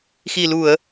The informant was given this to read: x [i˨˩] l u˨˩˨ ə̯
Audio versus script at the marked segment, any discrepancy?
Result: no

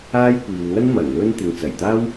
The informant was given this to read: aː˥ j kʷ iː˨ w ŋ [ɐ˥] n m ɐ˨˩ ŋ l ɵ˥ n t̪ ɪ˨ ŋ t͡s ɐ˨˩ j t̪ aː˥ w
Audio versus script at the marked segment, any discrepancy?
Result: no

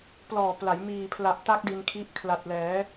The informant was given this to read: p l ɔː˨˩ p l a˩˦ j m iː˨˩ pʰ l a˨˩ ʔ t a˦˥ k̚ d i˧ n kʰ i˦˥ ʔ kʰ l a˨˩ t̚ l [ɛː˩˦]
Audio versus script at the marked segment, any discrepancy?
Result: no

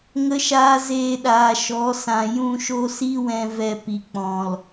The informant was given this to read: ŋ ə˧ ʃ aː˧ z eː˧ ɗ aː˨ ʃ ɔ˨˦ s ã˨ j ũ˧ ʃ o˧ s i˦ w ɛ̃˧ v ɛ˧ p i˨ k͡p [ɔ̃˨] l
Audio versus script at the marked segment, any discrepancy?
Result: no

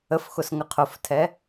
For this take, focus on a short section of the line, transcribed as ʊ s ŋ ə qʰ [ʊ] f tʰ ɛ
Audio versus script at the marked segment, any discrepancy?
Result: no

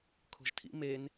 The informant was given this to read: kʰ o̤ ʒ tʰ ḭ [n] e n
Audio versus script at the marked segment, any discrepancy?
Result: yes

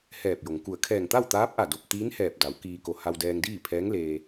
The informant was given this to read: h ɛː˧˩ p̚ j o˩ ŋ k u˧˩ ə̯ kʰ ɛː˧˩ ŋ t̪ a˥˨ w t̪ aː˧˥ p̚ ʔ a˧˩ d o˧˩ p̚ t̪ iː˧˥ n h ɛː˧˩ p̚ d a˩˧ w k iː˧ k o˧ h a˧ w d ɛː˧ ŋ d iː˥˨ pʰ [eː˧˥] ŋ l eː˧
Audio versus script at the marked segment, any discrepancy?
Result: yes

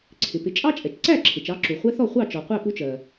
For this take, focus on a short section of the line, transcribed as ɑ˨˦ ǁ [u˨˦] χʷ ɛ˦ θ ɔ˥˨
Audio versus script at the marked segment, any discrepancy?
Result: yes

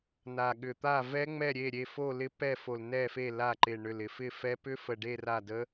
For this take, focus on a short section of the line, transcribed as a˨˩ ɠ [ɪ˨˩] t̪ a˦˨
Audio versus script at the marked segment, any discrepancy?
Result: yes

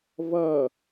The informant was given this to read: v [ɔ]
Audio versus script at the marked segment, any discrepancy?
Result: yes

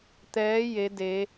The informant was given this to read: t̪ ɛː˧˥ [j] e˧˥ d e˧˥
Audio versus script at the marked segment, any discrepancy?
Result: no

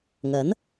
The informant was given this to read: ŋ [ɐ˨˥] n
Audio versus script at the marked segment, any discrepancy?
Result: no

